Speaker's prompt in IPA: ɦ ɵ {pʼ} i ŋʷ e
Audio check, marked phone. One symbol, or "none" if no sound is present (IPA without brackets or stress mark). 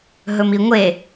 m